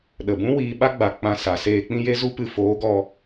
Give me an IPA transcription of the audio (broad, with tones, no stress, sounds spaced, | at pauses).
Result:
ɗ ə˨ b ũ˦ w iː˧ ɓ a˦ ɡ͡b a˨ k͡p ã˦ s a˨˦ s eː˦ k͡p ĩ˦ j e˦ z u˦ p ɨ˧ f oː˨˦ ɡ ɔ˧